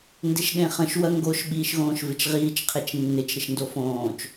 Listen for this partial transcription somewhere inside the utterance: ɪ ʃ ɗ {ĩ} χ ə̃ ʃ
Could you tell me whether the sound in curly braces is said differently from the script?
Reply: yes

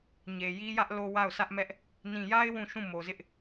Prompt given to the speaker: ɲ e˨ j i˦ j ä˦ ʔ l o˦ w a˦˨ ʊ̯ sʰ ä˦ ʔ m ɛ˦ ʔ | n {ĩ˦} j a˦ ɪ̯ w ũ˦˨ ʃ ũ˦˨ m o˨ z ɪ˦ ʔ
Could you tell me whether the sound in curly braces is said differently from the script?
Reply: yes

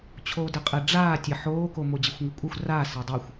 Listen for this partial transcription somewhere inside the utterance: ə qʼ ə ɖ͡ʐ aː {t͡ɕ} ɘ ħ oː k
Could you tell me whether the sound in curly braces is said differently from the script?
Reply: yes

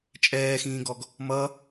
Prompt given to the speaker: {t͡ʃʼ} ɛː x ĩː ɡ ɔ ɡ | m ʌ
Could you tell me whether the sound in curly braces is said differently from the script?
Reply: no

